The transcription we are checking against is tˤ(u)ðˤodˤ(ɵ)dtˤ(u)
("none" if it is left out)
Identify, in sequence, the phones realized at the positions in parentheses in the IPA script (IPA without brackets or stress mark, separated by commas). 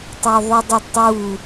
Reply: o, ɵ, u